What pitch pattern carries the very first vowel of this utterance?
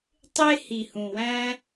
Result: high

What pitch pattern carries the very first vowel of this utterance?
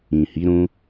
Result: low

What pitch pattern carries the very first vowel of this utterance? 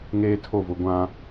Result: high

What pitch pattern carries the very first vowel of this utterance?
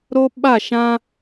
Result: high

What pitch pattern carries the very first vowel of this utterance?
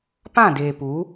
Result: falling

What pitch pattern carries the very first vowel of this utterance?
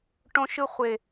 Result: high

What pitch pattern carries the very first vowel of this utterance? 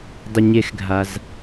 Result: low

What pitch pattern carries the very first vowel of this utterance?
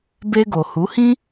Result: high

